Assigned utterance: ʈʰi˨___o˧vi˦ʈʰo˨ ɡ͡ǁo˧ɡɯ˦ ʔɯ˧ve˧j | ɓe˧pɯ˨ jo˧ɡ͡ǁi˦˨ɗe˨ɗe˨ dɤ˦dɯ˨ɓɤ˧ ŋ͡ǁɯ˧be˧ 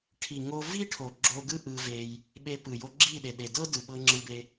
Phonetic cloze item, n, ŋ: ŋ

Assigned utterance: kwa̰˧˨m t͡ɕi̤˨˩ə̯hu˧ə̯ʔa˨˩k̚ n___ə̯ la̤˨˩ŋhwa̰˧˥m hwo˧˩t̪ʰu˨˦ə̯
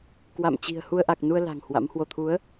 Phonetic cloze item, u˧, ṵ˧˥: u˧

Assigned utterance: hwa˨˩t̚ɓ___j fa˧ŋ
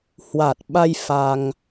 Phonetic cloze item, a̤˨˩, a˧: a˧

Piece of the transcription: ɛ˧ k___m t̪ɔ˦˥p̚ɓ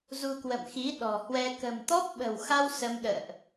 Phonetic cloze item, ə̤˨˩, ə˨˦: ə̤˨˩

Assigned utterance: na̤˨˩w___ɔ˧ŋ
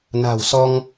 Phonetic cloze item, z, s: s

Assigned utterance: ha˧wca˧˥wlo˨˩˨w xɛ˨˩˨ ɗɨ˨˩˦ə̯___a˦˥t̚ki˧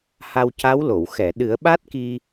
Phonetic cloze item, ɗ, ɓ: ɓ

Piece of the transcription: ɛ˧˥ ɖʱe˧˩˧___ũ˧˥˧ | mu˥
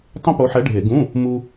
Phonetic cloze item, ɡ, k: ɡ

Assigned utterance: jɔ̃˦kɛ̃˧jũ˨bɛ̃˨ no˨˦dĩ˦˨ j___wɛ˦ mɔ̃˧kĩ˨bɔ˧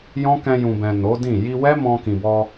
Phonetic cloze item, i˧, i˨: i˧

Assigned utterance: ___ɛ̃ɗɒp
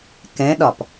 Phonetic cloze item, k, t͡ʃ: k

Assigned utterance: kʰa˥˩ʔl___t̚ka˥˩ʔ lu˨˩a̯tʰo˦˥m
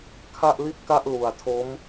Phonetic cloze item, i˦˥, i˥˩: i˥˩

